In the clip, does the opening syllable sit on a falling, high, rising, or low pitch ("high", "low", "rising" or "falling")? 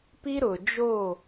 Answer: high